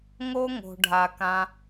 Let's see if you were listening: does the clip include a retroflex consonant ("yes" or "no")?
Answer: yes